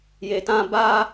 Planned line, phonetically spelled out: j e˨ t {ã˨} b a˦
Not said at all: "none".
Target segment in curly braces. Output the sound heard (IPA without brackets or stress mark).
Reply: ã˦